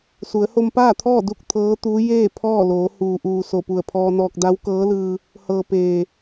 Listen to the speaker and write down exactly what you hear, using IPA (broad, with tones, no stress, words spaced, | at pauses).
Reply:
su˩˧ə̯ho˧mpaː˥˨t̪ʰɔː˥˨ du˥˨k̚ t̪ʰɤː˧˥t̪uː˧˥ jeː˥˨ pʰɔː˥˨ loː˩˧huː˩ʔuː˩ so˧˩pu˧˩ə̯pʰɔː˧nɔː˧k̚ da˧˥wkɤː˧˥lɯː˧ | hɤː˩ peː˩